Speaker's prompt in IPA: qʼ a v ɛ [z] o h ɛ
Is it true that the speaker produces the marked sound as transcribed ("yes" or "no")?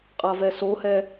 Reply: no